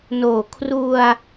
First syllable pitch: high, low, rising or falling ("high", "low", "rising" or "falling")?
low